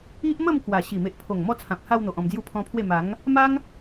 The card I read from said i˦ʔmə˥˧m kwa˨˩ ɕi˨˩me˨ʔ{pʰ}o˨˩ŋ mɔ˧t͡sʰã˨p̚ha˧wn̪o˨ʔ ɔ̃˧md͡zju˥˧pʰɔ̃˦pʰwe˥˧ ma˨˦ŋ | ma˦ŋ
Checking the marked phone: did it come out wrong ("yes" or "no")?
no